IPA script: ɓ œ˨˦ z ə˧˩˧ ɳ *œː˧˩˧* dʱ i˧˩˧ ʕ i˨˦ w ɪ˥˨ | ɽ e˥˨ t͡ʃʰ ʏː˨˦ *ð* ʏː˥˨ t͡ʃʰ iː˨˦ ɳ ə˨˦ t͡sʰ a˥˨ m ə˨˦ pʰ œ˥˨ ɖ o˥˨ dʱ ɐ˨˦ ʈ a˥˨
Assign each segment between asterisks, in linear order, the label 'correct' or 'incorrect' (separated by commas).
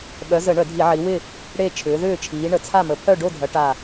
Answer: incorrect, correct